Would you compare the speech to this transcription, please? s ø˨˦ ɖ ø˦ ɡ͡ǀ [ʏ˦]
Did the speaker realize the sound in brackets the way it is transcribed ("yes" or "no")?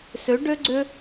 yes